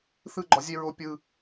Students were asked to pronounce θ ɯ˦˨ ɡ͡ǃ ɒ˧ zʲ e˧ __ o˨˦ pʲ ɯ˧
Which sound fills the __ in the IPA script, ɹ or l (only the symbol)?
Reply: ɹ